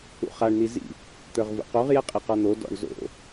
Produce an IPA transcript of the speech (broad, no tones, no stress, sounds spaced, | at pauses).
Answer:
ṵ χ a ɳ n̪ i z ḭ | t̪ ə˞ ʁ v ṵ q o ʁ j ɛ qʼ i q ɔ n̪ o d ɔ̰ ɳ z o̰